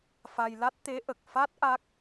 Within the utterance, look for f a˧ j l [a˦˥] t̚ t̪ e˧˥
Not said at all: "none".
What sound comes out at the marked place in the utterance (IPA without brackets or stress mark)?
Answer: a˦˥